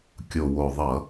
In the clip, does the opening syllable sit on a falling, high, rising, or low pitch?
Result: low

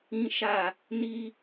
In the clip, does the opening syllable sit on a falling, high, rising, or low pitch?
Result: high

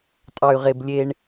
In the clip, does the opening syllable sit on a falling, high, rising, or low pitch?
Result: low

